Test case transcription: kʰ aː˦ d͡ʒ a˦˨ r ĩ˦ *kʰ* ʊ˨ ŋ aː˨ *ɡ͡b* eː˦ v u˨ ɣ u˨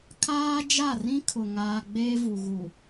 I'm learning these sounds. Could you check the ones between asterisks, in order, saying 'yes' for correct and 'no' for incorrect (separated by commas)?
yes, yes